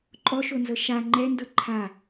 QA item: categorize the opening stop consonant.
click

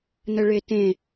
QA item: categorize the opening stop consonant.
plain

